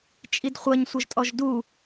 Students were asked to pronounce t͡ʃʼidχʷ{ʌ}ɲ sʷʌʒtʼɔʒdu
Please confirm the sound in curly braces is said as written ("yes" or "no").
yes